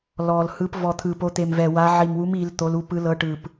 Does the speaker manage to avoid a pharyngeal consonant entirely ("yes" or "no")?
no